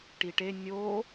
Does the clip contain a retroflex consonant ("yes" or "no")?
yes